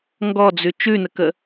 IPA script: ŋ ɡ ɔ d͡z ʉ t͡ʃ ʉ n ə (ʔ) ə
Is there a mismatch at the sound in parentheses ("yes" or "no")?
yes